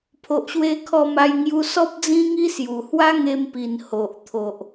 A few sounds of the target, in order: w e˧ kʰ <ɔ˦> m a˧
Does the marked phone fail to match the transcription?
yes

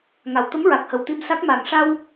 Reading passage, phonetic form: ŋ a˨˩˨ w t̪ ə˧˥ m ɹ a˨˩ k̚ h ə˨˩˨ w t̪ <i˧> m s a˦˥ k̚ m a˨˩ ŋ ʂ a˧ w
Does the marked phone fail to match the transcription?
no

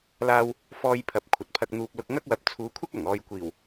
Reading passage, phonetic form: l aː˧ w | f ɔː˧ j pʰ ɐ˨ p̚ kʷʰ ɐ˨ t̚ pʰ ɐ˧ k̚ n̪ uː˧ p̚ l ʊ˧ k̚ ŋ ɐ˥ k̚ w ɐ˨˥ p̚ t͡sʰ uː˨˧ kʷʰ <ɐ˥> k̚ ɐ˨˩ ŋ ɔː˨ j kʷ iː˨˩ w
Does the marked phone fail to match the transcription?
no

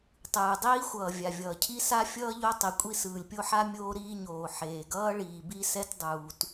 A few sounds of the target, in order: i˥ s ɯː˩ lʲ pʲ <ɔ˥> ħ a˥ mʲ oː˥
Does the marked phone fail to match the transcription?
yes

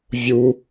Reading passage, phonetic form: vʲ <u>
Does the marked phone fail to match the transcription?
no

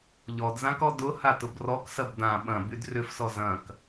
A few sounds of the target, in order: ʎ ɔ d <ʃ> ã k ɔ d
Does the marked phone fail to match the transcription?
yes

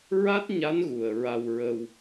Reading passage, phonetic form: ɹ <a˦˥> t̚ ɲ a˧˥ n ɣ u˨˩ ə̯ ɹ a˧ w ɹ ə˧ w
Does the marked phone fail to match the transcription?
no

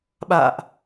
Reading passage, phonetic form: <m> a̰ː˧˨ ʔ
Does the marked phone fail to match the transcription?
yes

